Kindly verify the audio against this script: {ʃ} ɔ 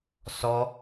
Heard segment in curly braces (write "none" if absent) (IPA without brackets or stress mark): s